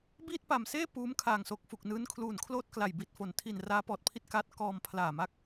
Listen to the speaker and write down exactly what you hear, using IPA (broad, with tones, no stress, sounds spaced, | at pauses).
b iː˥˩ t̚ p a˨˩ m s eː˥˩ p uː˦˥ m kʰ aː˨˩ ŋ s o˨˩ k̚ f u˨˩ k̚ n ɯː˦˥ n kʰ l uː˨˩ n kʰ l oː˥˩ t̚ k l a˨˩ j b i˨˩ t̚ f o˨˩ n tʰ i˨˩ n r aː˦˥ p ɔː˨˩ t̚ pʰ i˥˩ t̚ k a˦˥ t̚ k ɔː˧ m pʰ l aː˨˩ m a˦˥ k̚